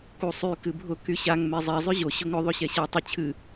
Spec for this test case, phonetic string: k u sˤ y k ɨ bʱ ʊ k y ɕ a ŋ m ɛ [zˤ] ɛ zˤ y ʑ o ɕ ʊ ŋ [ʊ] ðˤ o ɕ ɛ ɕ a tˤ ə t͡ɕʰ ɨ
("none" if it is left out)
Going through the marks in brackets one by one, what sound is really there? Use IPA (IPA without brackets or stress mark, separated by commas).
zˤ, ʊ